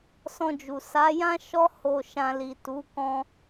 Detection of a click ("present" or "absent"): absent